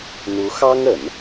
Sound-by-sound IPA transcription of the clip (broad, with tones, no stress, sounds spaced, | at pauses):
n̪ u˧˥ x ɑ˥ ŋ ə˨˩˦ n